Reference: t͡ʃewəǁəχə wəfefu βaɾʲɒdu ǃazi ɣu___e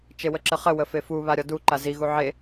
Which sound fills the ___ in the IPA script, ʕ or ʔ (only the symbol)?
ʕ